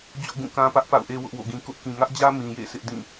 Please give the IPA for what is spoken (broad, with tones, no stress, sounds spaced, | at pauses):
d͡ʑ o̰˦˨ ɡ ũ˦˨ k ã˦ p ä˦ ʔ p a̰˦˨ ʊ̯ ʔ e˦ w ʊ˦ ʔ w o̰˦˨ ɡ ĩ˦ k ʊ˦ ʔ k ĩ˨ ŋ ä˦ ʔ d͡ʑ ä˦ m ĩ˨ j ḛ˦˨ s ɪ˦ ʔ d ĩ˦˨